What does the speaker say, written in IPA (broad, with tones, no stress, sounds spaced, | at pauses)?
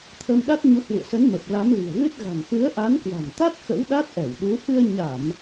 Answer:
t̪ʰ ə˧ m ɗ a˦˥ t̚ ɲ u˨˦ h w ṵ˧˨ ə̯ s ə˨˦ n m ə˨˩ p̚ l a˨˦ m l i̤˨˩ ə̯ ɣ ɨ˦˥ t̚ ɣ a̤˨˩ ŋ f ɨ˨˦ ə̯ ʔ a˨˦ n k w a̤˨˩ n t̪ a˦˥ t̚ x ə̰˧˥ w ɗ a˦˥ t̚ ʔ ɛ˧˩ w ɗ u˨˦ f ɨ˧ ə̯ ɲ a˧˩˨ m